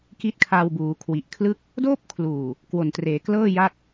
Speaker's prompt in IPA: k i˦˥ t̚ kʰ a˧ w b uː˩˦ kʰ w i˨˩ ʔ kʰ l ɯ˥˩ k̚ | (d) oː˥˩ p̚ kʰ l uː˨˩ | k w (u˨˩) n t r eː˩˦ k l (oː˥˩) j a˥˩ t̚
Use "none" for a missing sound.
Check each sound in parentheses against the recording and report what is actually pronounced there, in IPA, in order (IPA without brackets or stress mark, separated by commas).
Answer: d, o˨˩, ɤː˥˩